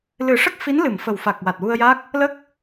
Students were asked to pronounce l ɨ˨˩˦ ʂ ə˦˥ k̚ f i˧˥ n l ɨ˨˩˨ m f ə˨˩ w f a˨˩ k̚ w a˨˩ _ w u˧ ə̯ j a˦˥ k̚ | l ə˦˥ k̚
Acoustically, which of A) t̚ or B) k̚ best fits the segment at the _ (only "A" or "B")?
A